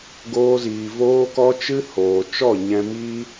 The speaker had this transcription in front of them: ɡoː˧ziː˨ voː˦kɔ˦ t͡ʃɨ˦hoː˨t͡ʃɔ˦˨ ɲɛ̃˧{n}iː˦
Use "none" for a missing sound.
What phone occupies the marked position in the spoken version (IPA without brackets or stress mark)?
m